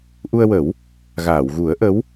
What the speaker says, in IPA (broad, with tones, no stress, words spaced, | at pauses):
ʔu˧ə̯wə˨˩˦w | ɣaː˨˩˨wɣu˨˩˦ə̯ʔə˧˥w